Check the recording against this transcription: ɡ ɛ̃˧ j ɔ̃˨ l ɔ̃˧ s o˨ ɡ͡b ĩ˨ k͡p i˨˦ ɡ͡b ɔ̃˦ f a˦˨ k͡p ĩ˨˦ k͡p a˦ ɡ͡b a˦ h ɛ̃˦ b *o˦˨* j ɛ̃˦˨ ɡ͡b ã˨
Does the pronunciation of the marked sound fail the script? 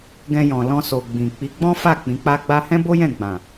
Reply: yes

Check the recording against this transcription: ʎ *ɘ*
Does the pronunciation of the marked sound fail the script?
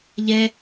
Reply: yes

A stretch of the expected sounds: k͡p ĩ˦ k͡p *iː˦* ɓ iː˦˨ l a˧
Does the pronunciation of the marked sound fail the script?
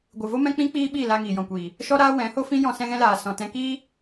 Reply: no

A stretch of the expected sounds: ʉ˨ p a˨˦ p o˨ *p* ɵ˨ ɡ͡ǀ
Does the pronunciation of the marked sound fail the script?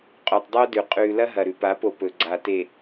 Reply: no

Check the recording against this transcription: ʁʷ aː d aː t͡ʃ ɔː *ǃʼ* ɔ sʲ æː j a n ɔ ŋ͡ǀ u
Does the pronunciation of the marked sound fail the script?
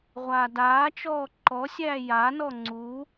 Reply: yes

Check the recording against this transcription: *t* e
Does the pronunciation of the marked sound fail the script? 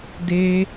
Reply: yes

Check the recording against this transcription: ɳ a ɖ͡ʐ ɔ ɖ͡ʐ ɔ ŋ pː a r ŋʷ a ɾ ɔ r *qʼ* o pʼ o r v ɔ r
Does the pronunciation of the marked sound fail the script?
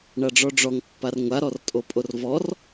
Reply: yes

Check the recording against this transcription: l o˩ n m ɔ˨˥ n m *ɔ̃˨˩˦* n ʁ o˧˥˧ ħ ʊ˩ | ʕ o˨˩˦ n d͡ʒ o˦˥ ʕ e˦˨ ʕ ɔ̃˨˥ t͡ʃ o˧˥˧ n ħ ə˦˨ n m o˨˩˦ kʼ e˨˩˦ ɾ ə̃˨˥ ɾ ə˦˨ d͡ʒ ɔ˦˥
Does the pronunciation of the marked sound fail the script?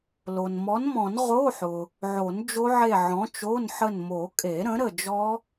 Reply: no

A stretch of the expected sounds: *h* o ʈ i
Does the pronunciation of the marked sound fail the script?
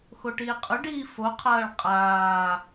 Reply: yes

